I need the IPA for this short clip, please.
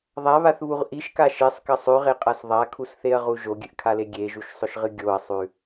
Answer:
ðˤ a β a θ β u ʁ ʔ i ʃ k a ʃ e sˤ k ɐ sˤ ʉ ʁ e qʼ a s ðˤ a kʰ u s θ e ɐ̯ ʁ u ʒ o ɡʲ ɨ ʔ kʰ a l e ɡʲ e ʒ u ʃ sˤ ɵ ʃ ʁ ɨ ɡʲ o ɐ̯ sˤ ʉ

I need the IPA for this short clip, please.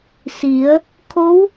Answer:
s i˩˧ ə̯ | kʰ o˧˥ w

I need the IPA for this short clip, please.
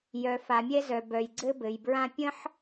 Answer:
j œ˩ f a˩ mʲ ɛ˧ z œ˩ b œ˩ j ɡ͡ǀ ɘ˧ b ɘ˩ j b ɹ ã˧ pʲ ə̃˥ ħ

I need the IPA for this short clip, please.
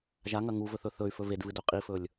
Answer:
ʒ a ŋ ɐ ŋ u v ɵ θ ɵ θ ɵ y̯ f ɵ v e d v ɨ d ɵ qʼ i f ɵ lʲ

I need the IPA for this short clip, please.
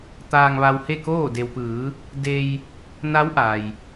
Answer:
t̪ aː˧ ŋ ʋ a˧ w h e˥˨ k oː˥˨ d e˩ w p ɯː˩˧ | d e˧ j | n a˧˥ w ʔ a˩ j

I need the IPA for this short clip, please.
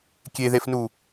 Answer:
kʲ e ð e f n u

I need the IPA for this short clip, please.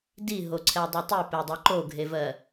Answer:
d i ɦ o ǀʰ ɛ dˤ ɜ tˤ i p e dˤ i ǃ o ɡʱ e v ɜ

